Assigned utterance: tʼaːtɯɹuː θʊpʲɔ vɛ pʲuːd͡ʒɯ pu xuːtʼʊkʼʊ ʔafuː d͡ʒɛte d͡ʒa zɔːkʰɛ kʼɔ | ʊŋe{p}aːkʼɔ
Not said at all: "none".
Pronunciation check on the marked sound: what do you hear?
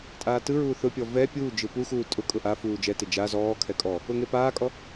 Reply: p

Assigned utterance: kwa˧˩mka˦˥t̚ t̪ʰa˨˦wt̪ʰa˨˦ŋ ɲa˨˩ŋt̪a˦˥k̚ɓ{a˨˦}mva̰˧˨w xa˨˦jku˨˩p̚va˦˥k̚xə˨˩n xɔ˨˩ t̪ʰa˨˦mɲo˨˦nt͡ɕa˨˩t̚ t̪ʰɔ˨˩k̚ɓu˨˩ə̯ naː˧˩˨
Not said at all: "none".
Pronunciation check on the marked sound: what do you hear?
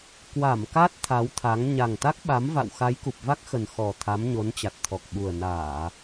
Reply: a˨˦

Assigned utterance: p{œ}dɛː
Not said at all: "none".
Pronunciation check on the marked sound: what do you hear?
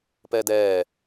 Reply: ɛ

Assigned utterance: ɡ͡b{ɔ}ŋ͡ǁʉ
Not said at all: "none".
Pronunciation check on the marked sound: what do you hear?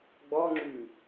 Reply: ɔ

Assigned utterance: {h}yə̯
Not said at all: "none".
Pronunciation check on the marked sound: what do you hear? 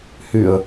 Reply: h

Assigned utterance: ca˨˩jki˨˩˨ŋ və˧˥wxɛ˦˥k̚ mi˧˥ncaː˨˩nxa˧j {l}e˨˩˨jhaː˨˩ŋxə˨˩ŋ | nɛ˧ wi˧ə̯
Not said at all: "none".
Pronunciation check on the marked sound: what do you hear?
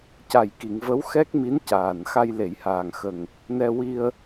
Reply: l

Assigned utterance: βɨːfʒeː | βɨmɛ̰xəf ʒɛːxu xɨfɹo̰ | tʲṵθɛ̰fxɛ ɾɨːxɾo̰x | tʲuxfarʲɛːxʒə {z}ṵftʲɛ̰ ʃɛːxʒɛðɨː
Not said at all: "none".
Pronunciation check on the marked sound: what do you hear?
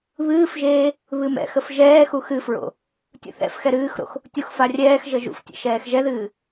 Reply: ʒ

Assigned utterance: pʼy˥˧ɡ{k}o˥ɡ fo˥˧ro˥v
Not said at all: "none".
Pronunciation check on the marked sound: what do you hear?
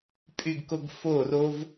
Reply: k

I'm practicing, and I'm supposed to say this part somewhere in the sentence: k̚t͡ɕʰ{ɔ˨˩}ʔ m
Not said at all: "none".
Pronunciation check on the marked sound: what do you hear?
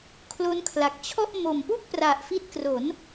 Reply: ɔ˥˩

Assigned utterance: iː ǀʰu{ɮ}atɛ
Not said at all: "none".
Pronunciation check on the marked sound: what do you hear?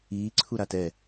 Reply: ɾ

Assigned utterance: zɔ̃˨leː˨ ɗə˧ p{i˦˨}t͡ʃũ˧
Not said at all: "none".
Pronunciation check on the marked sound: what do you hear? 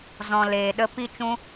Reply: i˦˨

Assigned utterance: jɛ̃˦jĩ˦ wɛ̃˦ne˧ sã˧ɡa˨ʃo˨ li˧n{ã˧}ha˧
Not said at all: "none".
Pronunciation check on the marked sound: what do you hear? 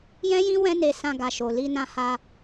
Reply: ã˧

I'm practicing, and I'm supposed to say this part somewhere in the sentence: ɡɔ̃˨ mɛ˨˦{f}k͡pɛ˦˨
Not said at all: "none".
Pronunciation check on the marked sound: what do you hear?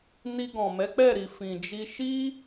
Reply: none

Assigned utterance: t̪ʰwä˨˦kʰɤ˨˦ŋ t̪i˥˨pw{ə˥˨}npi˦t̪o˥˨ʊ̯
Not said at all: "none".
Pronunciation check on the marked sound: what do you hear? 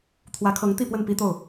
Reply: ə˥˨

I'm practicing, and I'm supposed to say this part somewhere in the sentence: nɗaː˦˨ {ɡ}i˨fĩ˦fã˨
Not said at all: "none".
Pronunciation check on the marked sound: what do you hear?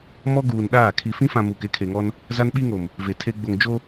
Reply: kʰ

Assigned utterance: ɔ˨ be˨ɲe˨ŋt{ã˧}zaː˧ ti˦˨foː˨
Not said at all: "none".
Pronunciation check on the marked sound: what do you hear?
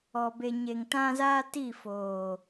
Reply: ã˧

